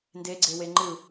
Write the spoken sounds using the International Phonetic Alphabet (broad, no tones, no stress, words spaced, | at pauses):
ndeɡ͡ǀewe ŋ͡ǃɯ